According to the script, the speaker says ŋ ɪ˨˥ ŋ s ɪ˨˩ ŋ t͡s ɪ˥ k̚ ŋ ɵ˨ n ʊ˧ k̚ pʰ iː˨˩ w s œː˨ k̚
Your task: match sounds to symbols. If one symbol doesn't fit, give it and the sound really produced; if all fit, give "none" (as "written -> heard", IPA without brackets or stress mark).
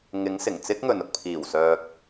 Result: none